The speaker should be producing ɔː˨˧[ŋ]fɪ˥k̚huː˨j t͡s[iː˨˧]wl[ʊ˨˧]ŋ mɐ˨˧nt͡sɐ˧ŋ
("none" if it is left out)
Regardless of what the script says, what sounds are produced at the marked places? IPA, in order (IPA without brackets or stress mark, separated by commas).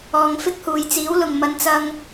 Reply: ŋ, iː˨˥, ʊ˨